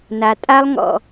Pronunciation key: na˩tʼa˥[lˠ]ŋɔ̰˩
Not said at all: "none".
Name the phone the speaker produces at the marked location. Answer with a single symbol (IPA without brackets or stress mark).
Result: lˠ